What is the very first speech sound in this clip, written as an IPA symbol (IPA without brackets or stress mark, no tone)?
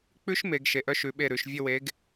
k͡p